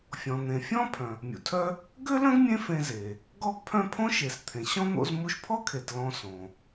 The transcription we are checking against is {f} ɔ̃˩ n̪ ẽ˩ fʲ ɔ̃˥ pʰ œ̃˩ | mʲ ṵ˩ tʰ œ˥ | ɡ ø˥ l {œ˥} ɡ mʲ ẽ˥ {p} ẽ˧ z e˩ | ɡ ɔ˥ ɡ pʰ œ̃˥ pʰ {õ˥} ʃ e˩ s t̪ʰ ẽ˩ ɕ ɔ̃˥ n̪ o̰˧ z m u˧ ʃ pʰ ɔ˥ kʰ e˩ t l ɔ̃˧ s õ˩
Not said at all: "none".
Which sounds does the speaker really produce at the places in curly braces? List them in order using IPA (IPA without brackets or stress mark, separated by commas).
fʲ, œ̃˥, f, õ˥